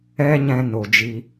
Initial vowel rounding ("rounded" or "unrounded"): unrounded